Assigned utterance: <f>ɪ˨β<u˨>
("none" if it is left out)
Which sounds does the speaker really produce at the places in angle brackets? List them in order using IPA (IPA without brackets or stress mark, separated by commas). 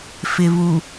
f, u˨